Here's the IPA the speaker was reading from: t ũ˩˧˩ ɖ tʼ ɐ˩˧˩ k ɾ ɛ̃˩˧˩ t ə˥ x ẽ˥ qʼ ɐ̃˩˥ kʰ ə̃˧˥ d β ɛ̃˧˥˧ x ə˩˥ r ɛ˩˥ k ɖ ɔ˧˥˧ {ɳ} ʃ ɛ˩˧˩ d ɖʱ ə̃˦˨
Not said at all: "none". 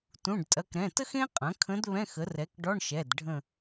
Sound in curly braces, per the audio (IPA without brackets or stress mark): ɳ